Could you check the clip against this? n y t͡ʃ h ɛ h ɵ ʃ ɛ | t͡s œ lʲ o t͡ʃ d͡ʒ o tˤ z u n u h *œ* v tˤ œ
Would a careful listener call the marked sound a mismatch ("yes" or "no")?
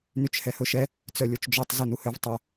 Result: yes